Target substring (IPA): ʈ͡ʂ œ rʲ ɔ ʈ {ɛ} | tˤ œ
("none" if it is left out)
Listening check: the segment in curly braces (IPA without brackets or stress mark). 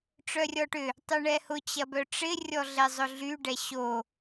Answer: ʏ